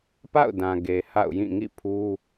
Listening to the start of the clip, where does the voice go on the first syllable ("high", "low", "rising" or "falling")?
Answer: falling